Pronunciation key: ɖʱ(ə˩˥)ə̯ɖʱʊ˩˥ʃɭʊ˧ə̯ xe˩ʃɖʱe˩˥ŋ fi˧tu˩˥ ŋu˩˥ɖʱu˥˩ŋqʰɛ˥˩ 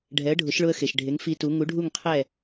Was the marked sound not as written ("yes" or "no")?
yes